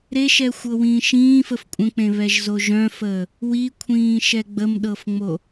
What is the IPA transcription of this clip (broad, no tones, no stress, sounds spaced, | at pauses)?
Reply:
ɾ e ʃ ɛ xʷ ɤ w ĩː ʃ ĩː f ə f kʷʼ ə̃ k͡p ẽ β ɛ ʒ z o ʒ œ̃ f əː | w i kʷʰ ĩː ʃ ɛ ɡ͡b ə m ɗ ɤ f ŋ͡m o